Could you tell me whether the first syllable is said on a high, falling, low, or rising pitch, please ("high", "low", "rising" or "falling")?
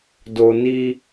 low